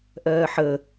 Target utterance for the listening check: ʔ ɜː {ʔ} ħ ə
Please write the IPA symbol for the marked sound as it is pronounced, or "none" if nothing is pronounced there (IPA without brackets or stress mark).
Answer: none